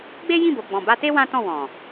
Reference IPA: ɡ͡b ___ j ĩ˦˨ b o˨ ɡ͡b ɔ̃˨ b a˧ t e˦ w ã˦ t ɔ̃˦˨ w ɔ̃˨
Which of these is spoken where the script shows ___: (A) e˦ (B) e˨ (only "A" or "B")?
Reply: A